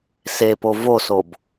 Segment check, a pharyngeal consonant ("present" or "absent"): absent